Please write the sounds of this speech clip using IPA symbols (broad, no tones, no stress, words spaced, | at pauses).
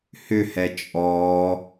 hʏhɛ t͡ʃʼɔː